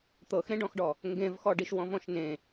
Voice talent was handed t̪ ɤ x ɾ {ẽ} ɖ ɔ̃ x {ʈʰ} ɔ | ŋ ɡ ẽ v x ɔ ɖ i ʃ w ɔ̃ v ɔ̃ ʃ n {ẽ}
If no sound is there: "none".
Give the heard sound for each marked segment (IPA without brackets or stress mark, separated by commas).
ẽ, ɖ, ẽ